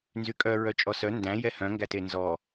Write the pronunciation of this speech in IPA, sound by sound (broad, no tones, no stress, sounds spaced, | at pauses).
n z y kʼ œ ɹ œ t͡ʃʼ ɔ s œ n d æ̃ j ɛ h œ̃ ŋ ɡ æ t e n z ɔ